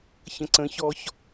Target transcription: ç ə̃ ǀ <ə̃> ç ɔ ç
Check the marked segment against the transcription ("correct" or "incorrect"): correct